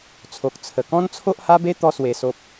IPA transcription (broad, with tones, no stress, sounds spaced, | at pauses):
t͡sʰ o˨ k̚ t͡sʰ ə˨˩ k ɔ̃˦ n t͡sʰ o˦ ʔ h a˦ b e˦ t̪ ɔ˦ s w e˨˩ s o˨ p̚